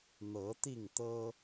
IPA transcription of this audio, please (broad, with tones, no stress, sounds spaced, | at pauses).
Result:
n̪ ɤ˨˦ t̪ i˥˨ ŋ t̪ ɤ˦